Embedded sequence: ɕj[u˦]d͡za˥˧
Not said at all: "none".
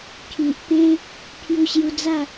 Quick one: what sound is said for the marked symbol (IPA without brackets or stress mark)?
u˧